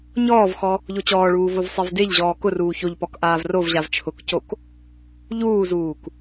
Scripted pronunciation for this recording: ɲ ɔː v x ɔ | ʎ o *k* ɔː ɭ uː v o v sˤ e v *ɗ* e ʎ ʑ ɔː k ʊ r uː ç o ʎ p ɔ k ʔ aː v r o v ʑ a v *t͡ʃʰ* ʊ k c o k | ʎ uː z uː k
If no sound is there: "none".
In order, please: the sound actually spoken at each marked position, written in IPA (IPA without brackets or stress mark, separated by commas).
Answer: t͡ɕ, d, t͡ʃʰ